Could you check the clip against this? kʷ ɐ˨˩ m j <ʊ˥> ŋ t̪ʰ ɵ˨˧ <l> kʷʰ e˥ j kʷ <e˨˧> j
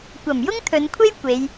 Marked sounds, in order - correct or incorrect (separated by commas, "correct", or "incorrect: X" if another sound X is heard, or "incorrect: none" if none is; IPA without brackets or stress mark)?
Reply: correct, incorrect: n, correct